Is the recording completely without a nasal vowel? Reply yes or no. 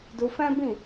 no